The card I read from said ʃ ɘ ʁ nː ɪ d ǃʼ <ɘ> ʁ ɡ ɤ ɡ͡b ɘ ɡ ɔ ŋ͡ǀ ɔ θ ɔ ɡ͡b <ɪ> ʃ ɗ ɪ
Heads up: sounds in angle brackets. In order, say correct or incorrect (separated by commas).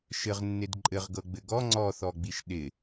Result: correct, incorrect